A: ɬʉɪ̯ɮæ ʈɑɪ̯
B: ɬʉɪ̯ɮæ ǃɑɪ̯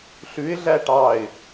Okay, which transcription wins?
A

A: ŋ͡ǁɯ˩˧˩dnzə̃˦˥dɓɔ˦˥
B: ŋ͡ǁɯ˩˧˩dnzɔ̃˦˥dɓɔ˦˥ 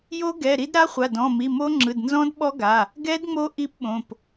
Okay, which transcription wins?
B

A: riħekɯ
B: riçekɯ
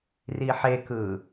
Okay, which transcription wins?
A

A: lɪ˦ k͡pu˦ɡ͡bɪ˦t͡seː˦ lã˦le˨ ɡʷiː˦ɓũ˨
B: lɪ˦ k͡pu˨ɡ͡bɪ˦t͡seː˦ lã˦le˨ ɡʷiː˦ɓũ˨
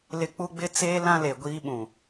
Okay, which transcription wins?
A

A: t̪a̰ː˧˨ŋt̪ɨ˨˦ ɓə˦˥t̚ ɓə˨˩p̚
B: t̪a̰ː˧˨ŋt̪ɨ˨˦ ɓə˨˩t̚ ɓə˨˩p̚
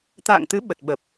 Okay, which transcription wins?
B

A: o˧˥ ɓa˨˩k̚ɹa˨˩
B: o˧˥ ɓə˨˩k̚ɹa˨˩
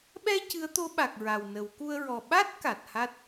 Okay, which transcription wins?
A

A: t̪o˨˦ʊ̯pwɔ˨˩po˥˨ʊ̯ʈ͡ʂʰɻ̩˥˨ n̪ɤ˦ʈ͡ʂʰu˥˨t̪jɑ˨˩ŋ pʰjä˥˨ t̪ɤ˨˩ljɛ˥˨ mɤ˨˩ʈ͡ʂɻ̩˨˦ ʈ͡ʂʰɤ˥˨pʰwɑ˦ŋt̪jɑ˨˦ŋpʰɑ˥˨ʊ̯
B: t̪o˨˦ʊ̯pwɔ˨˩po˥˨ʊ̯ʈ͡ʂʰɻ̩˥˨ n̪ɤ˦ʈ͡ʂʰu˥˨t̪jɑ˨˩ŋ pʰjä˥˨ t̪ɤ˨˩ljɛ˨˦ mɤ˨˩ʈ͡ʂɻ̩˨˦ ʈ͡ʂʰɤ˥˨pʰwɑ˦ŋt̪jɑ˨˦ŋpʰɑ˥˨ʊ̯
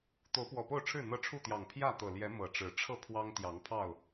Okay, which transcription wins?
B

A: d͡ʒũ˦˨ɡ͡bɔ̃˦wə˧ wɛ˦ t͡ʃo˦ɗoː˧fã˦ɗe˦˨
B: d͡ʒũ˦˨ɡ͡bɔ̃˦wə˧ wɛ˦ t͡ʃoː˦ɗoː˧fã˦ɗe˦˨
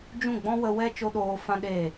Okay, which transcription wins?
A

